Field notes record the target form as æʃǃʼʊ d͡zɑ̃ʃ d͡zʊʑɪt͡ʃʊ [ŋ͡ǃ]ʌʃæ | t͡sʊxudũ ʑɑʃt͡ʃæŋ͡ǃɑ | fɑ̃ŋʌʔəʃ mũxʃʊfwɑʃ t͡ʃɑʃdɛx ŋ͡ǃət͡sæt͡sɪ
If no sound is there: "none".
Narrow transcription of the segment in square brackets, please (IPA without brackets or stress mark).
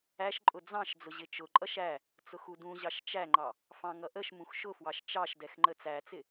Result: ǃʼ